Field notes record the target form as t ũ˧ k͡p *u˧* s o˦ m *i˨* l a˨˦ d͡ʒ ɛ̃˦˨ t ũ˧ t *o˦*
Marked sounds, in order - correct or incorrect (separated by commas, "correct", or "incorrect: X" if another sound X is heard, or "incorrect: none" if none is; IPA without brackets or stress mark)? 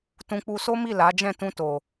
correct, incorrect: i˦˨, incorrect: o˨